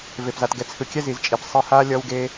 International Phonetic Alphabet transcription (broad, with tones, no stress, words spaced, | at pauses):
ve˨pza˨tɡɛ˨t͡sʰɯ˨ kʲɛ˦zi˨zt͡ʃʼi˨p sˤɯ˧ha˦ lʲʌ˧wɡe˧